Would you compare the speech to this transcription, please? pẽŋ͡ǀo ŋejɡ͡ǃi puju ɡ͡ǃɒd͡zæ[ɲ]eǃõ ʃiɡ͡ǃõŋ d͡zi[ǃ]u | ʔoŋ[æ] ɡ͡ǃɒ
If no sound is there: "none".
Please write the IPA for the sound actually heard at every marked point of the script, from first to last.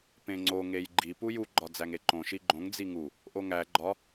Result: ŋ, ŋ, æ

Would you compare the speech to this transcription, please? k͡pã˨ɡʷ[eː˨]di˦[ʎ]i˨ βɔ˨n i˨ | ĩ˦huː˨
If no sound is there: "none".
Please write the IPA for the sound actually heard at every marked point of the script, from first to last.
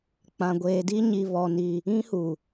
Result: eː˨, ɲ

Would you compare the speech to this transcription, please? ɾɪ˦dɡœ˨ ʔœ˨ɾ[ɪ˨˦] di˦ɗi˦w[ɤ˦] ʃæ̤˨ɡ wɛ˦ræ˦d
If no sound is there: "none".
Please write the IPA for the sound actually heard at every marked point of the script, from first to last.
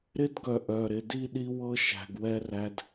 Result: ɪ˨˦, ɤ˦

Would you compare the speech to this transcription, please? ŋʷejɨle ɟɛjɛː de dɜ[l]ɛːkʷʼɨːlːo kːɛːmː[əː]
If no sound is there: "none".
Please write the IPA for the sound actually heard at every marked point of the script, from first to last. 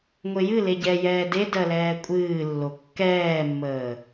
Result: l, əː

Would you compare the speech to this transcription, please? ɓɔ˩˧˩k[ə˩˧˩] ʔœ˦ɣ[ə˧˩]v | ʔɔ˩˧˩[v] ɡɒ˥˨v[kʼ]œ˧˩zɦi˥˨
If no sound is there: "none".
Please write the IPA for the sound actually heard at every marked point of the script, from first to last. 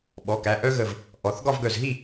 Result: æ˩˧˩, ə˧˩, θ, ɡ

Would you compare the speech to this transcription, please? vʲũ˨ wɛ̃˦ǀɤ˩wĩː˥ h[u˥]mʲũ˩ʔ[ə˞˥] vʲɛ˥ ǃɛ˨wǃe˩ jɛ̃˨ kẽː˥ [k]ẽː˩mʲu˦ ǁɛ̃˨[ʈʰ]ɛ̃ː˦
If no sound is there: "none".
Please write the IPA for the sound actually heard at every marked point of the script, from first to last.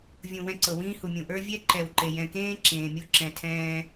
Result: u˩, ə˞˥, ǁ, tʰ

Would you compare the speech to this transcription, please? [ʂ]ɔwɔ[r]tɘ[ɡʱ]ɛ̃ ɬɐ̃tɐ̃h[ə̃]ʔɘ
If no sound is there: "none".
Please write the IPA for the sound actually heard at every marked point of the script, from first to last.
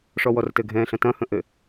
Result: ʂ, r, ɡʱ, ə̃

